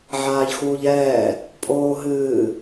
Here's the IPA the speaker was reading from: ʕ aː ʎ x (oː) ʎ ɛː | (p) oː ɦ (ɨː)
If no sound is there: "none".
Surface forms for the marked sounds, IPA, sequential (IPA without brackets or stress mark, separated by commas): uː, pʼ, ɨː